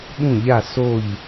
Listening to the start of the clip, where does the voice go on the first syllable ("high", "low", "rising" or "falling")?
falling